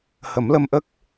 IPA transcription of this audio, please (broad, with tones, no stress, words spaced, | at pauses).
hə˨˩˦mlə˧mʔə˦˥k̚